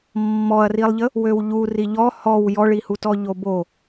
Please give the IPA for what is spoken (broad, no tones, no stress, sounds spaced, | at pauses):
mː ɔ ɐ̯ r i lˠ ʎ ə | w ø w ʎ u r i ʎ ɔ h ɔ w j ɔ ɭ i h u t ɔ ʎ o b o